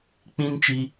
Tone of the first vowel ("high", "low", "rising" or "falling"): high